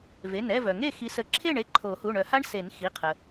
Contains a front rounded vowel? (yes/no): yes